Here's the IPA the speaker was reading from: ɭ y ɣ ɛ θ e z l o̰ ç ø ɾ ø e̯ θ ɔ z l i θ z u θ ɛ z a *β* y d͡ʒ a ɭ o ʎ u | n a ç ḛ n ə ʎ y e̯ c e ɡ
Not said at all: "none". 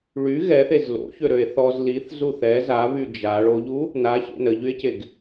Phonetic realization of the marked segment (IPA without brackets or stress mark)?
β